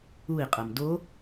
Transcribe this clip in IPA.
ui̯qʼɤm do

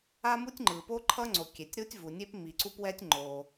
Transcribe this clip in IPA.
a˥mu˥tʲŋ͡ǃɯ˩ po˥ǃʰʌ˥ŋ͡ǀo˩ kʲe˩tʲɾu˥tʲvu˩ nʲe˥pmi˩ǀu˥pwɛ˥tʲ ŋ͡ǃo˩

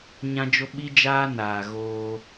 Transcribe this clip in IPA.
ɲã˦d͡ʒo˦ ɓi˦d͡ʒaː˦ naː˨ ɣoː˦

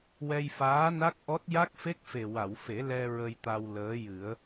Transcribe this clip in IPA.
wɛ˧jfaː˧˥na˦˥k̚ʔɔ˦˥t̚ ja˦˥k̚fe˦˥k̚fe˨˩ wa˨˩˨wfe˨˩˦ lɛ˧ ɹə˧jt̪a˧wləː˧˥jɨ˨˩˦ə̯

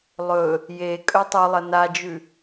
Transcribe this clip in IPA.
lˠɵ | je kʼɵtˤulˠɐ nad͡ʒʉ

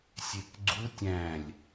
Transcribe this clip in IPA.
sʲekɡ͡ǀu tʲæ̃lʲ

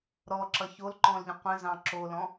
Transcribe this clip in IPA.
ɾɔ ǁʌçolǃɔ̃lʎə̃ qʷə̃zɑ̃ ǁolɔ̃

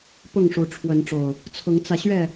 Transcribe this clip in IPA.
pʊ˥˨ŋʂu˨˦ʈ͡ʂʰwə˨˦n ʈ͡ʂo˨˩ʊ̯ | t͡sʰʊ˨˦ŋt͡sä˧ɕɥɛ˥˨

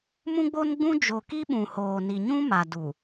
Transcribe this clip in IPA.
mũ˦ɡ͡bo˦nɡ͡bũ˦ d͡ʒo˨ki˦ɓũ˨ hoː˨ni˨ɲũ˦ ma˨ du˨

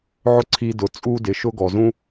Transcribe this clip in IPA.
ʕʊ˥ǀʰi˧ dʊ˩ t͡sʼu˧dɪ˩ʃʊ˧ ɡɔ˩zũ˥

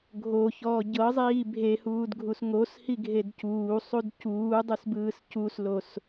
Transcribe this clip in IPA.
ɡʱoçɔː ɟɤzˤiː bʱehuːdɡʱus ŋoshiɡʱed cuːsˤud cuːdˤusbɯːs cuslos

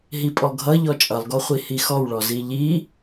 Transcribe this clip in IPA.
ɦipʼɔɡʱʌʎɔ t͡ʃʼʌlˠɡɔχʷi hixɔwɭɔ ziʎi

